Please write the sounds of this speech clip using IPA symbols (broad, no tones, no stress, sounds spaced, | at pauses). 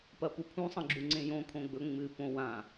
p ɐ p u pʰ ũ sˤ ɐ̃ ɡ͡ǁ u ŋ͡ǀ ẽ j õ kʰ õ ɡ͡b ɵ ŋ͡m ɨ p õ w ã